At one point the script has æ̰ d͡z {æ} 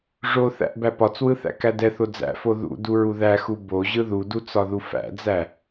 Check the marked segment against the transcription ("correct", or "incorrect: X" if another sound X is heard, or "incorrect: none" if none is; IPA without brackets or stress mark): correct